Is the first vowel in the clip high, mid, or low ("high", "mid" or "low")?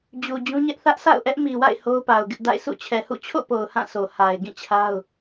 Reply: high